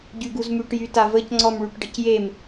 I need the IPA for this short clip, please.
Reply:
ɟyɡuzmyʈjy tavəcŋ͡ǀɔm ɭyʈɖəcjem

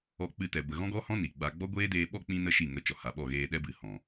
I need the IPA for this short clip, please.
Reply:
ɔ˧k͡pɨ˧tɛ˨ bə˨ɣɔ̃˦ɡɔ˦hɔ̃˦ ni˨ɡ͡ba˧ ɡ͡bɔ˦ɡʷeː˦deː˧ɓɔ˦ k͡pĩ˦nə˦ ʃi˦˨ŋə˧ t͡ʃɔ˨ha˨ɓɔ˦˨ ɣeː˧ɗɛ˦bɨ˨ hɔ̃˨

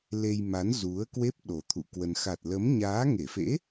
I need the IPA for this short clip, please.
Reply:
le˧jma˨˦n zu˨˦ə̯kwe˦˥p̚ ɗo˨˩t̪ʰṵ˧˨kwə˧n xa˨˩t̚lə˨˦m ɲaː˨˦ŋe˧˩fḛ˧˥

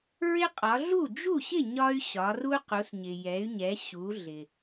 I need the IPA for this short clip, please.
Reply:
ɹɪ˦qʼɒ˩˧ ɮu˥˩ d͡ʒu˥˩ɕɪ˥˩ ɲɒ˦y̯ɕɒ˩˧ru˦ qu˩˧sɲɪ˩jɛ˩˧y̯ɲɛ˩˧ ɕu˩˧ɮɪ˩

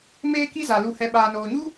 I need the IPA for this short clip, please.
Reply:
meː˦ki˦ za˨ lu˨hɛ˨ ɓaː˨noː˨ɲu˦

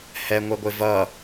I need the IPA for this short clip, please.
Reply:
hɛŋʷʌɡʷɪ vʌ

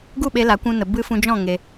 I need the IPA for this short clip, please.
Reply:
ɡu˦˨ɓe˧la˨˦ kʷũ˧nə˨ bɨ˦ fũ˧d͡ʒɔ̃˦˨ ŋe˧

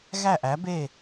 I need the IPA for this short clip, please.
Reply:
ɣæ˥˩ʔæ˩˥be˥˩

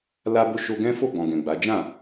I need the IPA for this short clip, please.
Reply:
la˧bo˧ ʃo˧ɡɛ̃˦fo˦˨ ɡ͡bɔ̃˨ ɡɛ̃˨ɡ͡ba˨˦ d͡ʒã˦˨

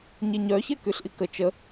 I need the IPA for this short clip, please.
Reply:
ɲeɲœ çɛkyɬʔikə t͡ʃə

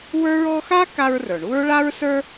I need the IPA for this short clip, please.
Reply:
wə˞˥ɹ ɔ˦xa˥ ka˦ɹrə˞˩ɳu˥ɹ ɭa˦ɹsə˞˦

